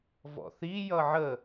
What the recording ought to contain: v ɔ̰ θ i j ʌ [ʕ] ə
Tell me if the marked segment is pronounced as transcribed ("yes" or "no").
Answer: yes